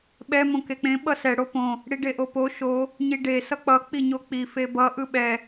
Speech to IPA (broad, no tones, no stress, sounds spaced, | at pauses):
ɓ ɛ m õ k e k͡p ẽ ɓ ʌ s ɛ ɽ o p õ | ɽ i ɖ e ʔ o p o ʃ o | ɲ i ɖ e s ʌ k͡p ʌ k͡p i ɲ o k͡p i f e b ʌ ʔ ɯ ɓ ɛ